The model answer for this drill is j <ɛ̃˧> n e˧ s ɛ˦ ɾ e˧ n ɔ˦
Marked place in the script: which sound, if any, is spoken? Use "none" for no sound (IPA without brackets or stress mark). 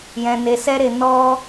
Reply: ɛ̃˧